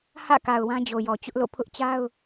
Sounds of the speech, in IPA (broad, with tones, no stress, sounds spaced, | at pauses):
h ä̰˦˨ k a˨ ʊ̯ w ã˦ d͡ʑ o˨ j ɔ˨ t͡ɕ ʊ˦ ʔ l o̰˦˨ pʰ ʊ˦ ʔ t͡ɕ a˦ ʊ̯